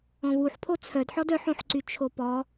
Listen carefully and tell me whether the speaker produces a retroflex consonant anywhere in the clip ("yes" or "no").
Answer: no